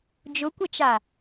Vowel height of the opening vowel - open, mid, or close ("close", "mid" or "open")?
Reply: close